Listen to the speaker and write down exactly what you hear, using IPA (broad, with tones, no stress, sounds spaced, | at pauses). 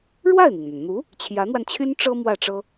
ɻ w a˥˩ ɪ̯ n̪ i˩ ŋ n̪ a˩ n n̪ u˧˥ | t͡ɕʰ j ä˧˥ n̪ w a˧ n t͡ɕʰ y˥ n ʈ͡ʂ ɤ˥ m w ä˥˩ ʈ͡ʂ ɤ˥